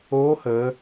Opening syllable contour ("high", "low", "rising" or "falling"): rising